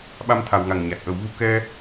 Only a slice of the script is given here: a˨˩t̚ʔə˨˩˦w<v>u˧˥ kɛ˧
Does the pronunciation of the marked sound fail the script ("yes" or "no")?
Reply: no